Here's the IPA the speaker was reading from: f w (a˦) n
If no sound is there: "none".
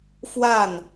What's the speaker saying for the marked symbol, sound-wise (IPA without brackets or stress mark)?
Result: a˥˩